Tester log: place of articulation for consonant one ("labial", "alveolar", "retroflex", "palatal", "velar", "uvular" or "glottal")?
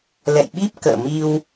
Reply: alveolar